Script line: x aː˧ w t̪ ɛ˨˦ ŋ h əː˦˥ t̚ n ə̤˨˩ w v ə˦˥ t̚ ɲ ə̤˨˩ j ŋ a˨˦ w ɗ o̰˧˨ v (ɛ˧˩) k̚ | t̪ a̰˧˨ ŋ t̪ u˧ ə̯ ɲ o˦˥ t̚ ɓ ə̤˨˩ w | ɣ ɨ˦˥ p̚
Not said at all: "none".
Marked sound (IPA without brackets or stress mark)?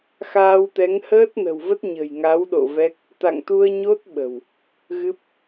ɛ˦˥